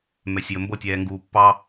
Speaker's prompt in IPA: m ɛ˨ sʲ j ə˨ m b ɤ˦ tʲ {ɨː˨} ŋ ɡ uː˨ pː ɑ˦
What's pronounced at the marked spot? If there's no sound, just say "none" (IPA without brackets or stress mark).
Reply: ɛː˨